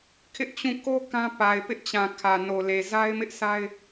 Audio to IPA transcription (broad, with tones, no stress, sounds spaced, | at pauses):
kʰ ɪ˦ ʔ t͡ɕ ũ˦˨ k o˦ k ã˦ p a˨ ɪ̯ p ɪ˦ ʔ t͡ɕ ã˨ kʰ ä˨ n o˨ l e˨ z a˦ ɪ̯ m ɪ˦ ʔ sʰ a˦ ɪ̯